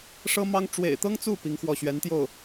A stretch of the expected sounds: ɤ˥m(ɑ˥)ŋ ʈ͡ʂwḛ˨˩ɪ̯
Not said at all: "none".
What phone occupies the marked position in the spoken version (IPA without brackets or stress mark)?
ɑ˥